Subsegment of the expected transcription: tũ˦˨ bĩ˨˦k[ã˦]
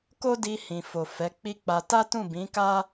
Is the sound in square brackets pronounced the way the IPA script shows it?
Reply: no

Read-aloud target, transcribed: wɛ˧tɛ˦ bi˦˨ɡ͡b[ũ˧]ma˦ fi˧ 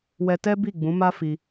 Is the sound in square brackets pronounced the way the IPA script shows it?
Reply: no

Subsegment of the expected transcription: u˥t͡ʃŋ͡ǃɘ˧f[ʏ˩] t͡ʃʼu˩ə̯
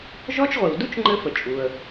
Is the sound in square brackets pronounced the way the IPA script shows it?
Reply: no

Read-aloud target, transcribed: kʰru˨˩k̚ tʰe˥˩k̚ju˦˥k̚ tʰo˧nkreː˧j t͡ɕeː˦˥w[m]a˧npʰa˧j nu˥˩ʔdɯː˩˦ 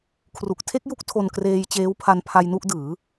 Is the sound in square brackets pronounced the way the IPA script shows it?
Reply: no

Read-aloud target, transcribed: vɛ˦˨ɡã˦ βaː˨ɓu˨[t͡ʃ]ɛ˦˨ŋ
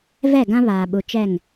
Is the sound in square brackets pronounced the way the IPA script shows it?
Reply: yes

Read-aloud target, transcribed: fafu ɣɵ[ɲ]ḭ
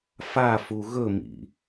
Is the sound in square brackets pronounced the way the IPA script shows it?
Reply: no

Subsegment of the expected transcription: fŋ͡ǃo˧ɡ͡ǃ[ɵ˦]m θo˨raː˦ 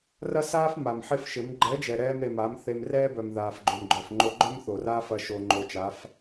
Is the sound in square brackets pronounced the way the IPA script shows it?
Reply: no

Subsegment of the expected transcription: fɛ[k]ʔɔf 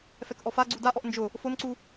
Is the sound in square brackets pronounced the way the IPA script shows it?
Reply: yes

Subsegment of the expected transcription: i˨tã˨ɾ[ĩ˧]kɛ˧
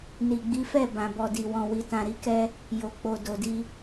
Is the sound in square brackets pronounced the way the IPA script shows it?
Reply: no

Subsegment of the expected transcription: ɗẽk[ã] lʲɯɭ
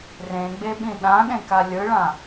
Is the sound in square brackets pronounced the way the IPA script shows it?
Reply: no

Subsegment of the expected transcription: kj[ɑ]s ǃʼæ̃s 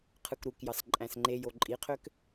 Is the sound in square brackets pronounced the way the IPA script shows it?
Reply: yes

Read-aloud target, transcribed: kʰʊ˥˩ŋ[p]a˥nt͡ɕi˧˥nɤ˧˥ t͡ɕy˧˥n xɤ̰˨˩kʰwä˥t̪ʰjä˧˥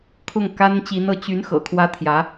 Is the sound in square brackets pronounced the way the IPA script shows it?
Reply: no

